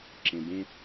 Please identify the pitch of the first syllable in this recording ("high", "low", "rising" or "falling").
low